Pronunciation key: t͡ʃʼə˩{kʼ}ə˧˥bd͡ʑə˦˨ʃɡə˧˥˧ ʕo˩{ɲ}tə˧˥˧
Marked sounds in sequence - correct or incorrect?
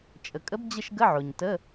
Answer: correct, correct

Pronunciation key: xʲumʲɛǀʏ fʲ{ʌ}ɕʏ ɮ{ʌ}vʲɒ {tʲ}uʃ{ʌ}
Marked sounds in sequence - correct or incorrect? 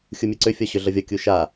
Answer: incorrect, correct, incorrect, incorrect

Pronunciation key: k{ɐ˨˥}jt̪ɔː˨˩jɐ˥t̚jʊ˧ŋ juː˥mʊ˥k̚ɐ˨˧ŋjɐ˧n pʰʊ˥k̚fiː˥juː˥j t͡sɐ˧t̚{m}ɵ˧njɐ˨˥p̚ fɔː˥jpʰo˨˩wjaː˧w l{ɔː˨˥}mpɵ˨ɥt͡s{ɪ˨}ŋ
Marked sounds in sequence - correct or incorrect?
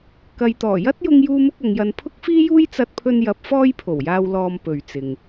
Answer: incorrect, incorrect, incorrect, correct

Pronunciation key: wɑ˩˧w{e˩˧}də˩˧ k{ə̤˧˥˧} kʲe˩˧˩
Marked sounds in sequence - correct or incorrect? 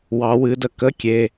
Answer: incorrect, incorrect

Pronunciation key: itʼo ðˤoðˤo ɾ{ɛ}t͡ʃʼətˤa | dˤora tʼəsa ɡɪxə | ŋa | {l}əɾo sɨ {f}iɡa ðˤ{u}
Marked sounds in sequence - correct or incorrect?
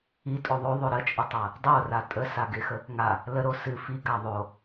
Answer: incorrect, correct, correct, incorrect

